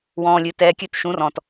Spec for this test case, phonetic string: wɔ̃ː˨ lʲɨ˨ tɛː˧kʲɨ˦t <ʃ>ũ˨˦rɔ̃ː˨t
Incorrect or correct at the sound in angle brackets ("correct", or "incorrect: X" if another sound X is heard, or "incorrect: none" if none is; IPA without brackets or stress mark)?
correct